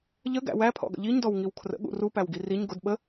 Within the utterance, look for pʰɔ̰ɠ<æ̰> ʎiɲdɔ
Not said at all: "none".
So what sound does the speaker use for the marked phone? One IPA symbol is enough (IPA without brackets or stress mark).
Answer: ə̰